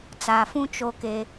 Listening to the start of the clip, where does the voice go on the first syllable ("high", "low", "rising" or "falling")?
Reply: low